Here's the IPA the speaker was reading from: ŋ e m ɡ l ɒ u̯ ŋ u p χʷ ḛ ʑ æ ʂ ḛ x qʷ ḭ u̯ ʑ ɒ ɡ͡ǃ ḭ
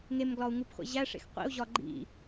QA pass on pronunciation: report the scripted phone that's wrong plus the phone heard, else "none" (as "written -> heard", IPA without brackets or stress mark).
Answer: none